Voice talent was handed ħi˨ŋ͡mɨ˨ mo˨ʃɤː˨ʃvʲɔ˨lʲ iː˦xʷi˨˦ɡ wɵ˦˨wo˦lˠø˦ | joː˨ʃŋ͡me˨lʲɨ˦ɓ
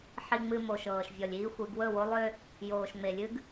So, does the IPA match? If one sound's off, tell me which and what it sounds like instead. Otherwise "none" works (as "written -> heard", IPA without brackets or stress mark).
ɓ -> ɡ